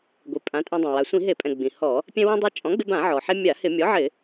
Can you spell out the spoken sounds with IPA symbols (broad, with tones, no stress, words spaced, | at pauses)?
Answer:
ɡʷi˩pʼã˩˥tʼɛ̃˧dˤã˩ wa˩sʷĩ˧˩˧ɦe˧˩˧pʼɛ̃˩ ɡ͡bĩ˩hɔ˧˩˧ | pʲɛ̃˧ wĩ˧dˤe˧ t͡ʃʼɔ̃˩˥ɡ͡bɪ˧bã˧˩˧ ʕɔ˩ħe˧ mʲa˧˩˧hɪ˧˩˧ mʲɔ˩˥ʕɪ˧˩˧